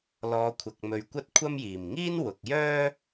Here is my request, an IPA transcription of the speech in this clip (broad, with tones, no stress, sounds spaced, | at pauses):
l ɔː˨˧ kʷʰ ɐ˨ k̚ m ɵ˨˧ ɥ kʷ ɐ˥ t̚ kʷʰ ɐ˥ m j iː˨˩ m ŋ iː˥ n w ʊ˨ k̚ j œː˥